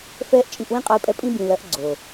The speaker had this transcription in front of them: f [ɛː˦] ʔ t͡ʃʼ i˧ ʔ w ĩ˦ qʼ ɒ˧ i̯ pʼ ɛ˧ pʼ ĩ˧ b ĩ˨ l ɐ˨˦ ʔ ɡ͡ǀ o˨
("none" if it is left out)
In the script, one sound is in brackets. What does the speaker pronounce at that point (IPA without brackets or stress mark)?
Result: ɛː˦